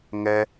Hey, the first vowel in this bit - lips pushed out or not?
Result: no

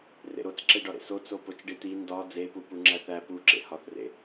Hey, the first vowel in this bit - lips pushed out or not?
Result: no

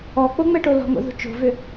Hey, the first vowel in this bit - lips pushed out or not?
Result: yes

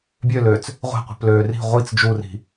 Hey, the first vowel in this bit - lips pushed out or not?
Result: yes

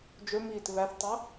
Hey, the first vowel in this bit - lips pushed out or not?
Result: yes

